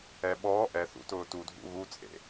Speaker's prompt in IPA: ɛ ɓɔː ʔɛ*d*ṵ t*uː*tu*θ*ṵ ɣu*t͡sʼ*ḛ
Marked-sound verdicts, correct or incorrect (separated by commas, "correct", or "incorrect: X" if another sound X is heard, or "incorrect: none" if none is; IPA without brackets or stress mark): incorrect: θ, incorrect: ʊː, incorrect: dʱ, correct